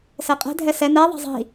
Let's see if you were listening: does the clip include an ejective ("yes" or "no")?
yes